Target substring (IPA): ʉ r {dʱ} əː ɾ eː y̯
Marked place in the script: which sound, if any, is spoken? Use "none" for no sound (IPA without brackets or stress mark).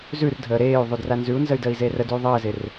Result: dʱ